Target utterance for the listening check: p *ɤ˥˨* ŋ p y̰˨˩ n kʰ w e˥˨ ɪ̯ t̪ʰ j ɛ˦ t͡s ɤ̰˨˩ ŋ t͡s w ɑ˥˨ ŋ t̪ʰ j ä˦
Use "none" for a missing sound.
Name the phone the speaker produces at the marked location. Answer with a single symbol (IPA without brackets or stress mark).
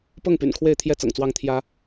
ɤ˥˨